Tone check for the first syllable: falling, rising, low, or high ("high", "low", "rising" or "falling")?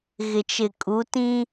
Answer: low